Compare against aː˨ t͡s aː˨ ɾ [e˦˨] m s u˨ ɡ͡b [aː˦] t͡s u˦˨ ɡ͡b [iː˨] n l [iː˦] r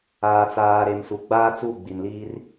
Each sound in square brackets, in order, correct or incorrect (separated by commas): incorrect, correct, incorrect, correct